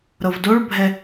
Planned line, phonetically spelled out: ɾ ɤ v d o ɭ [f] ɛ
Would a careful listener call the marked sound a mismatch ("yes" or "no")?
yes